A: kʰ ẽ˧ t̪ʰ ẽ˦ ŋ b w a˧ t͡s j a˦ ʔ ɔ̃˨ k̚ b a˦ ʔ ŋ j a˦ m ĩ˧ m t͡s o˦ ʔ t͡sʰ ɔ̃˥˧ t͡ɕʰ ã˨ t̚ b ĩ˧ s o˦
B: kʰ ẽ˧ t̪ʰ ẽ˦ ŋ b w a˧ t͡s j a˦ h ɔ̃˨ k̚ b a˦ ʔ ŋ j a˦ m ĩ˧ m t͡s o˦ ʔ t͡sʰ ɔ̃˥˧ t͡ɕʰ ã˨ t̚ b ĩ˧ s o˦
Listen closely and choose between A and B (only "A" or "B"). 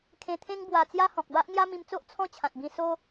B